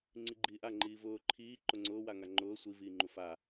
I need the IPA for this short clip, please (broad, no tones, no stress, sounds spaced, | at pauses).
ŋ͡ǀ i ɡ͡ǃ iː ʔ a ŋ͡ǃ iː v ʊː ǃʰ iː ǃ ʊ ŋ͡ǀ ʊː w a ŋ a ŋ͡ǃ ʊː sʷ i v iː ŋ͡ǃ u f a